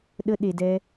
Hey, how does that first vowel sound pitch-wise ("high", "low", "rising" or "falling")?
high